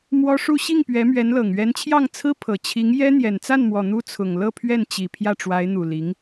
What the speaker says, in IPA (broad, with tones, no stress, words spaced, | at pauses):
mwɔ˥ʂu˥˧ ɕi˥˩ŋpɥɛ˧˥mɥɛ˧˥n lɤ˨˩ŋɥɛ˧˥nt͡ɕʰjɑ˥˩ŋ t͡sʰɹ̩˥ pʰɤ˨˩t͡ɕʰi˧˥ŋ jɛ˥ n̪jɛ˨˩nt͡sa˥˩nmwɔ˨˩ n̪u˥t͡sʰʊ˨˩ŋ lɤ˥˧pʰɥɛ˥˩n t͡ɕi˨˩ pʰjä˥˩ʈ͡ʂwa˧˥ɪ̯n̪u˨˩li˧˥ŋ